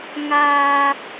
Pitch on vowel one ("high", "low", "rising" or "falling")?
low